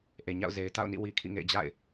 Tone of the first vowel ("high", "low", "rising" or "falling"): low